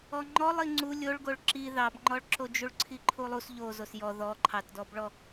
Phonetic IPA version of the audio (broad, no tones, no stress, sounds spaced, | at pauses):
ɔ ŋ͡ǃ ɔ lˠ i ŋ͡ǀ u lʲ o ɭ ɡ o ɭ ǁ i ð ɑ b ŋ͡ǃ ɔ ɭ ǁ o d͡ʒ u ɭ ǀʰ i ǃʰ u lˠ u s ʎ o z o s j ɔ ð ɔ ǃʰ ɑ t d ɔ b ɭ ɔ